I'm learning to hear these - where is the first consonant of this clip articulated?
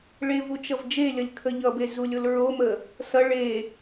retroflex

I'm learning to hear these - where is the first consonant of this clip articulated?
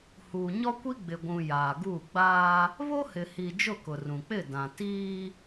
throat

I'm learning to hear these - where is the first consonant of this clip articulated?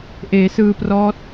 throat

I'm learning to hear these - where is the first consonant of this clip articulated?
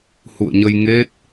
throat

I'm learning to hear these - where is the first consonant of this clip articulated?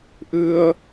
throat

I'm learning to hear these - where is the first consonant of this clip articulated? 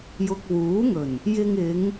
palate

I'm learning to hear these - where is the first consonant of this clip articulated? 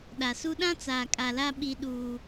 tongue tip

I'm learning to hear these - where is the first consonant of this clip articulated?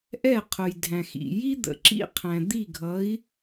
throat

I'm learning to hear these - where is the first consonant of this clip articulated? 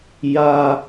palate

